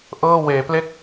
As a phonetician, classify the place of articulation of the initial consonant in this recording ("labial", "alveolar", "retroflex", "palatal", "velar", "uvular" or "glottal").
glottal